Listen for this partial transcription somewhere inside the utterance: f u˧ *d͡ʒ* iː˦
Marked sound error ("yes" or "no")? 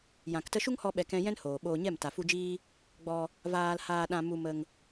no